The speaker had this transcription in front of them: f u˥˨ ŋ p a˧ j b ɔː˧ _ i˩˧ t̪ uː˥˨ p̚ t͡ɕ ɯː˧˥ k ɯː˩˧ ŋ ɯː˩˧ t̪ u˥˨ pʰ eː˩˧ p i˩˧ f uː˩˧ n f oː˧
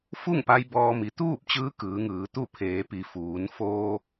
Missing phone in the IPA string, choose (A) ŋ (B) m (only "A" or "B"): B